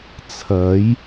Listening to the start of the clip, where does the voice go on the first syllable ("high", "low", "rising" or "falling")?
rising